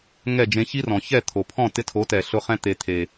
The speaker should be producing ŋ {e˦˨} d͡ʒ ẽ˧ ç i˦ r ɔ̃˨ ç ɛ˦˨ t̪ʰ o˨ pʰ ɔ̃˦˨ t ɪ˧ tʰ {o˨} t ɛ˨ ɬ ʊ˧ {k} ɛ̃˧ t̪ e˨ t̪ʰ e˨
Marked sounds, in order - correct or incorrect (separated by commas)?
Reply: incorrect, incorrect, incorrect